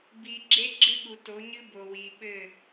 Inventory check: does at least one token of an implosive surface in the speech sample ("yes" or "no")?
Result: yes